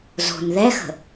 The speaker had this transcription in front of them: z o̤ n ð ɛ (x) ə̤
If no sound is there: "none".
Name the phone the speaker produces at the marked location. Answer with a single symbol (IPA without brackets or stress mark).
x